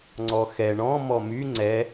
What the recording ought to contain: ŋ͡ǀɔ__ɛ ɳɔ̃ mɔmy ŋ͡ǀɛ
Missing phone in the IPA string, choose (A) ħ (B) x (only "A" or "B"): B